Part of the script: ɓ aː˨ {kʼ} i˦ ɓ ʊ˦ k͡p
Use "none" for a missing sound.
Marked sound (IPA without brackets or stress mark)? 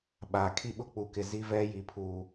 kʰ